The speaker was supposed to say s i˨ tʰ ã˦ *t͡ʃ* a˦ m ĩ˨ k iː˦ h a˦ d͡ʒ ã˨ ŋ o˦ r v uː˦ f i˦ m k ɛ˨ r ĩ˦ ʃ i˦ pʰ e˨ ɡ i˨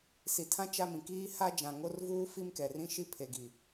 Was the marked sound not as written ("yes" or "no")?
no